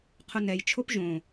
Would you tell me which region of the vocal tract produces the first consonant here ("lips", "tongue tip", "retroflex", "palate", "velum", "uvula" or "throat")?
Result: uvula